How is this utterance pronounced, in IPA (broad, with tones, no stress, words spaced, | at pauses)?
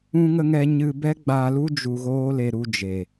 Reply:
ũ˦ŋə˦ŋɛ˦ ɲɨ˧bɛ˦ɡ͡ba˧lu˦ d͡ʒu˧ɣoː˦le˧ ɾu˧d͡ʒe˨